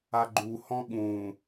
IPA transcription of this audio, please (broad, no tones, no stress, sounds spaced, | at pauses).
a ɡ͡ǃ u h ɔ̃ ɠ ũ